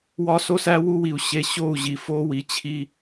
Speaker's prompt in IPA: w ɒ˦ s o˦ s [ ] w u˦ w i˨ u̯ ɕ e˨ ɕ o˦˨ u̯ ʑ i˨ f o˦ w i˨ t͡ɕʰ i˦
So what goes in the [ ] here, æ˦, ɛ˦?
æ˦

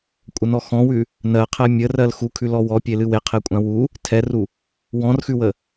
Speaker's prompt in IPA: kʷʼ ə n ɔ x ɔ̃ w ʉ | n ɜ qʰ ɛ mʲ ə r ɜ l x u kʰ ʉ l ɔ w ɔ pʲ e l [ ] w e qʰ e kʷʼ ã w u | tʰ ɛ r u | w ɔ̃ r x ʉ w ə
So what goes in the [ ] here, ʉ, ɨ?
ɨ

